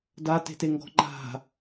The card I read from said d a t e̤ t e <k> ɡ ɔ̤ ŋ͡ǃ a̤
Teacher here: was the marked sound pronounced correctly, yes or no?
no